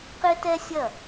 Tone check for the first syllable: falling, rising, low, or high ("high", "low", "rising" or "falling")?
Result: high